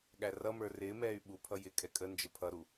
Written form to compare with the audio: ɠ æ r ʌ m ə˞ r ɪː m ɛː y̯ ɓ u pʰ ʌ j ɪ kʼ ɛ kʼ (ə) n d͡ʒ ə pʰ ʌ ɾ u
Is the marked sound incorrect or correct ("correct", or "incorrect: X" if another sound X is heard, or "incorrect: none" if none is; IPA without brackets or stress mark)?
correct